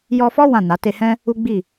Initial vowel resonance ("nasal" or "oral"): oral